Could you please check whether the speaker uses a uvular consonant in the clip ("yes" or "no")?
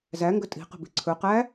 yes